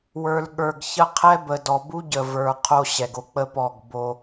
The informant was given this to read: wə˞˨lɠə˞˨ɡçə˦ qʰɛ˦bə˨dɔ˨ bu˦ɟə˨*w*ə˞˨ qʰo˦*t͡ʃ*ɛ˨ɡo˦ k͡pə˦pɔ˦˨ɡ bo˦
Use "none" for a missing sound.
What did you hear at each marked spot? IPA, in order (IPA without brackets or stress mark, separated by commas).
v, ɕ